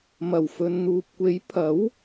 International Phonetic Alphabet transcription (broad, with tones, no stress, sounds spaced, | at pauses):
m ɐ˨˩ w f ɵ˨ n n̪ uː˨ p̚ kʷ e˨˥ j pʰ ɐ˨˥ w